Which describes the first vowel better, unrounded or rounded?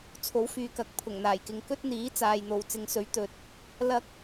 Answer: rounded